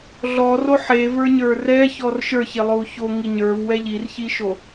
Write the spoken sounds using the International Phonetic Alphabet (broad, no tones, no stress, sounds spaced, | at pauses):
ɮ ɔ r o ħ e v ə˞ ɲ ə˞ r ɛ ç ɔ r ʃ ə˞ ç e lˠ o u̯ ç o ŋ i ɲ ə˞ v w ɛ ʎ i r ç i ʃ o